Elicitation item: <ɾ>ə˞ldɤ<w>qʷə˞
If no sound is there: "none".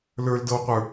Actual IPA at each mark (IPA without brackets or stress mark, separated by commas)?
l, w